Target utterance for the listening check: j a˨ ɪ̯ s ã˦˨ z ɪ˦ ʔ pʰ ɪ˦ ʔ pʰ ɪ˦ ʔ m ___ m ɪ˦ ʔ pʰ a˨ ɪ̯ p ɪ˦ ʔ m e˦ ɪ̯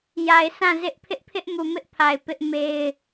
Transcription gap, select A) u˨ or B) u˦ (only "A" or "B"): A